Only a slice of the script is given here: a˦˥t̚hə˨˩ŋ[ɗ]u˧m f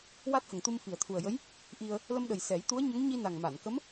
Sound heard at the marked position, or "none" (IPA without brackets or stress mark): t̪